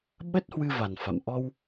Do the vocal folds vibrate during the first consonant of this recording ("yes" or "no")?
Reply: yes